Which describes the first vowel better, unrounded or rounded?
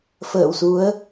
unrounded